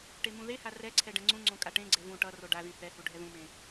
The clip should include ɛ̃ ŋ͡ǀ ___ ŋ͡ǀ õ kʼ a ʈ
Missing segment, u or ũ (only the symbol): ũ